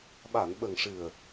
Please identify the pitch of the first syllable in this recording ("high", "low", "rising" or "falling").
low